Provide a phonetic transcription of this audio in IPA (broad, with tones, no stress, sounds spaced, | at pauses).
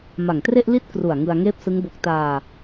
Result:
m a˨˩ ŋ t r e˥˩ ʔ l i˥˩ t̚ k r u˨˩ a̯ ŋ ɯ˧ a̯ ŋ eː˥˩ p̚ s ɯ˦˥ ŋ b o˦˥ k̚ t aː˧